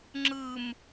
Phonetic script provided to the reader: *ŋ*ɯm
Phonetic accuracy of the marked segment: incorrect: ŋ͡ǁ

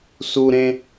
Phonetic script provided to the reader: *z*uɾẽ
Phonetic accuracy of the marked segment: incorrect: s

